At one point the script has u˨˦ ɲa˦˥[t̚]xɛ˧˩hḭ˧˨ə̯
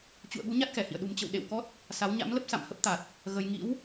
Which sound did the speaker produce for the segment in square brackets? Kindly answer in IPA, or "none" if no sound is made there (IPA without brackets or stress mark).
t̚